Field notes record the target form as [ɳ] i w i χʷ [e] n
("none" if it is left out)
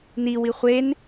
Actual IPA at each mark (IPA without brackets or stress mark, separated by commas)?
n, e